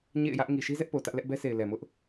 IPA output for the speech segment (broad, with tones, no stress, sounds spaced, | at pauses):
ɲ ḛ˦˨ ɪ̯ j ä˦ ʔ ŋ i˨ ʃ i˦ z ɛ˦ ʔ p o˨ t ä˦ ʔ l ɛ˦ ʔ b ɛ˦ s e˨ ɪ̯ l ɛ˨ m ʊ˦ ʔ